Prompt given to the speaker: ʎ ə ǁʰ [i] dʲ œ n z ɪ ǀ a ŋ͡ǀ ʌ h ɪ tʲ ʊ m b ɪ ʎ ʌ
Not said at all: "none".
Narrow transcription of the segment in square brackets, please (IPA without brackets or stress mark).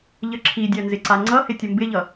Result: i